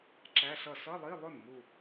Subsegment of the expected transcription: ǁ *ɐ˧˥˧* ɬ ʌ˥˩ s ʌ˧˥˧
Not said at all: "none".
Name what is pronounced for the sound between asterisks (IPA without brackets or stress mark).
æ˧˥˧